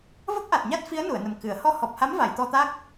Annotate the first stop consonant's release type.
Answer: plain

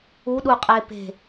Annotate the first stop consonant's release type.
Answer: implosive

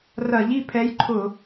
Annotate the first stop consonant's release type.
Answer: aspirated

